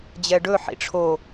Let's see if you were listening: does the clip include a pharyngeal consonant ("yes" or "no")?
yes